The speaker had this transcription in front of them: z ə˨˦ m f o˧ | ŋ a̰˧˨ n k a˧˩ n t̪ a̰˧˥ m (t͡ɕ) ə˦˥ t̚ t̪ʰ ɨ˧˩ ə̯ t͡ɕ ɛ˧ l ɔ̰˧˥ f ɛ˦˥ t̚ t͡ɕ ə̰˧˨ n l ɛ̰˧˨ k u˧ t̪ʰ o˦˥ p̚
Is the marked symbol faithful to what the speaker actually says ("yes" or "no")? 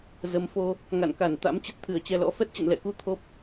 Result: yes